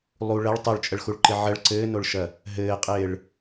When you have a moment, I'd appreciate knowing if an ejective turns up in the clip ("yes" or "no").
yes